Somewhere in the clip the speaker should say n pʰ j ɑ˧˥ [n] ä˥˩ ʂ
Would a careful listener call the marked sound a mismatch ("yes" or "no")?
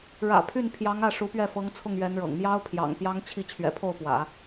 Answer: yes